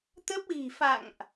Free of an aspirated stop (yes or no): yes